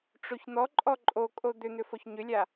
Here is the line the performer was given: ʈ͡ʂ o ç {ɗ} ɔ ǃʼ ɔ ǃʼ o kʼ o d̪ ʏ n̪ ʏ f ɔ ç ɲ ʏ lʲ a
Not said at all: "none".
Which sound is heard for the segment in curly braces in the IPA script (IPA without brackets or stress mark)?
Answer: n̪